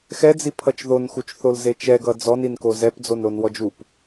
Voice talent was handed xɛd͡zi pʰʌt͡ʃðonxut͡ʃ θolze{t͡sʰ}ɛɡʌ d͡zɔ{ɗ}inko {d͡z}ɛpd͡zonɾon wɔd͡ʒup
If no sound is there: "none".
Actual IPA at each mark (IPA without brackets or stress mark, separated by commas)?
t͡ʃ, n, z